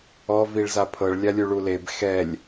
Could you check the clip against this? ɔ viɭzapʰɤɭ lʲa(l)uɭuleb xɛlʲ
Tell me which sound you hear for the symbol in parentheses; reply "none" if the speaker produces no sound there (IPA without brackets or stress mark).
lʲ